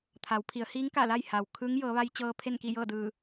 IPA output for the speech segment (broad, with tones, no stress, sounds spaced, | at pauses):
t̪ʰ a˩˧ w pʰ i˩˧ ə̯ h iː˧˥ ŋ k a˧˩ l a˥˨ j h a˩ w kʰ ɯː˧˥ ŋ j ɤː˩˧ ʋ a˧ j t͡ɕ ɤː˧ pʰ e˥˨ n k i˥˨ j ɤː˥˨ d ɯː˧˩